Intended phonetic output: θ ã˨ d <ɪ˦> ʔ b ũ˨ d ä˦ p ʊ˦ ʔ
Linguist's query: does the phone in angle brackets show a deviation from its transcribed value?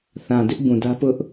no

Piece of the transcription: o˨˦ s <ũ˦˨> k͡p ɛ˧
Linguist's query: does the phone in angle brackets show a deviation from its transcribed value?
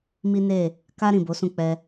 no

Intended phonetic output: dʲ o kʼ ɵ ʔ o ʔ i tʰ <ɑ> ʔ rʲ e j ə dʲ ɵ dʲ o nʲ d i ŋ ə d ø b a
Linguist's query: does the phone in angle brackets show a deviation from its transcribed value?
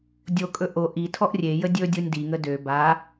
yes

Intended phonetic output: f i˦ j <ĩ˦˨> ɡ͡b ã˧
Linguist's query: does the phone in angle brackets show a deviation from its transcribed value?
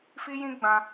yes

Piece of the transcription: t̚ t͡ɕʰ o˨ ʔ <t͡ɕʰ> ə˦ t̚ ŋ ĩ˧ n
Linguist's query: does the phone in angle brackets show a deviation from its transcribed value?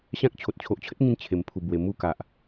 no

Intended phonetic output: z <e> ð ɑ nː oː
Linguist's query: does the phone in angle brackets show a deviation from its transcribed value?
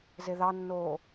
no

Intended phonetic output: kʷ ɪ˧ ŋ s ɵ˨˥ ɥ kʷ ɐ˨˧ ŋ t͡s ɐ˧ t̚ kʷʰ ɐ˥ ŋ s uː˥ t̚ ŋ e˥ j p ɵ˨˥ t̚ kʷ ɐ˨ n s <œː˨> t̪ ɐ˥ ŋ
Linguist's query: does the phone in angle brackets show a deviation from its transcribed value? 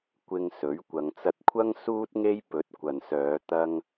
yes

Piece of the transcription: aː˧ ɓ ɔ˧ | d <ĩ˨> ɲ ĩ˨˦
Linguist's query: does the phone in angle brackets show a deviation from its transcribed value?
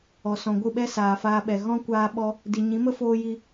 yes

